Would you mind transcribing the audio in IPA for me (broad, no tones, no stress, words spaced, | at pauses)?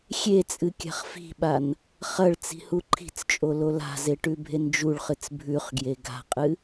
xʲet͡sʼɨ kʲa̤χfi̤ɓan | χɐɭ t͡si̤huǃʰi̤t͡st͡ʃʼo lola̤ze ʈʉbʱend͡ʒuɭχɨt͡s bʱʉχɡje ɡa̤qʼɨ